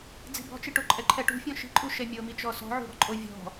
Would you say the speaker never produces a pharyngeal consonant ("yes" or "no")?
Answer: no